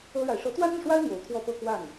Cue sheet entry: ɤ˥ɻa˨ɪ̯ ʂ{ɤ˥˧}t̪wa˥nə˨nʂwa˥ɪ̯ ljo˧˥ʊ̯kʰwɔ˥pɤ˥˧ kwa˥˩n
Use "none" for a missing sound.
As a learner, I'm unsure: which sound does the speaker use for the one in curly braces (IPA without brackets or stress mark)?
ɤ˧˥